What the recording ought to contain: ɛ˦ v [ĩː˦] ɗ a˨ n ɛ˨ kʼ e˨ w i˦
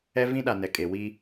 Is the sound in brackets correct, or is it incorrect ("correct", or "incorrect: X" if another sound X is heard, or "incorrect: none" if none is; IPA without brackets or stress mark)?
incorrect: ĩ˦